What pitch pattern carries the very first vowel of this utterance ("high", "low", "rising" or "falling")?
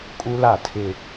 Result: high